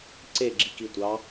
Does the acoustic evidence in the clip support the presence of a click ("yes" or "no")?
yes